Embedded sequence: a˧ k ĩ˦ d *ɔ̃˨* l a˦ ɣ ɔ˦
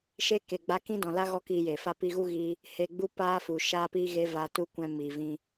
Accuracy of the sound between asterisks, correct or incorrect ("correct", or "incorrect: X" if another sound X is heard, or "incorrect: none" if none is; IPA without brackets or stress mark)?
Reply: correct